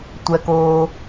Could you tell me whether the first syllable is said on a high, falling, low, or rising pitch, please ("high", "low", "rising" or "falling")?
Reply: low